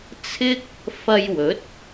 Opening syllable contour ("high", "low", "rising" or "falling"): high